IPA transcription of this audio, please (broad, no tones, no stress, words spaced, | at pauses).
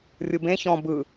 rʲɯbẽ çɔ̃ bɯ